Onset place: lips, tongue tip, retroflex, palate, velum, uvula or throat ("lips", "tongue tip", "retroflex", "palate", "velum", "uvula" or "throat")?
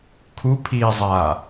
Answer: velum